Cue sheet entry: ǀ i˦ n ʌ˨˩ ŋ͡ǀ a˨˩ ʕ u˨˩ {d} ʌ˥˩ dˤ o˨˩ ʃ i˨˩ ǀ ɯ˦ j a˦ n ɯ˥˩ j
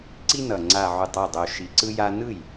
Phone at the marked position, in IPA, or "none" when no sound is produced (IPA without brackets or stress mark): tˤ